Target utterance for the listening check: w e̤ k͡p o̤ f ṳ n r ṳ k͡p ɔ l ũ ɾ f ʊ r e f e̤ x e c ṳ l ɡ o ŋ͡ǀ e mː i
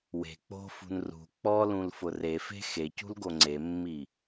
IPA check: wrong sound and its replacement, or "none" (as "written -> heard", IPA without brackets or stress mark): ɾ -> l